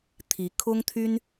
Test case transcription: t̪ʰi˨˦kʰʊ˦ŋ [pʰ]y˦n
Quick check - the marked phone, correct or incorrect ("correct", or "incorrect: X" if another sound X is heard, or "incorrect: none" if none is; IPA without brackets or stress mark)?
incorrect: t̪ʰ